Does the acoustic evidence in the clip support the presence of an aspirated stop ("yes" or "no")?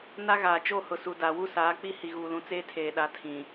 yes